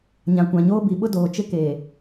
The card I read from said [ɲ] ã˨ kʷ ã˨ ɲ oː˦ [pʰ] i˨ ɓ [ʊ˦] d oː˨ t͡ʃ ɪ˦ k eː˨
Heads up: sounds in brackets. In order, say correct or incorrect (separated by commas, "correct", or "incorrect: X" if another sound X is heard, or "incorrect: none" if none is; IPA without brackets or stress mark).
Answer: correct, incorrect: b, correct